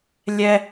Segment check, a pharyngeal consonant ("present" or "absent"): absent